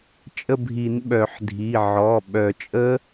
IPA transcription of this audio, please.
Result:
t͡ʃʼ ə˦˨ bʱ i˨˩˦ n ɓ œ˨˩˦ ħ dʱ i˩˧˩ ʕ ɔ˩˧˩ ɓ œ˨˩˦ t͡ʃʼ ə˦˥

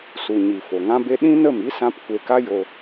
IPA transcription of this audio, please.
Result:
s u˨ ɲ i˨ f o˨ ŋ ã˦ b e˦ ɗ ĩ˦ n ə˦˨ m i˦ s ã˦ p kʷ e˧ k a˦ j o˧

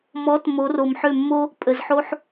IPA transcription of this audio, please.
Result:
m ɔ˨˦ t m o˨˦ r o˨ m ħ ø˦˨ mː o˦ | pʼ ə˨ z ħ o˦ ħ

